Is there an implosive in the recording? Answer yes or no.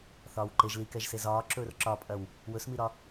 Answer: no